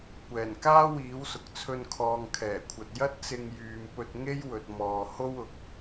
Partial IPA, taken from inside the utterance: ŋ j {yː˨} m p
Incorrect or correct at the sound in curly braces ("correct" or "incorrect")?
correct